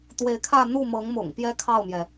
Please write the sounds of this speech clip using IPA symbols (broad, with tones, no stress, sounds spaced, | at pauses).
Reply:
t̪ w e˧˥ ɪ̯ kʰ ä˥˧ n̪ u˥˩ m ɤ˧˥ ŋ m ʊ̰˨˩ ŋ p j ɛ˥ kʰ ɑ˥˩ ʊ̯ m j ɛ˩